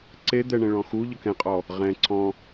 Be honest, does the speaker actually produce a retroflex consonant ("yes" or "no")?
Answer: yes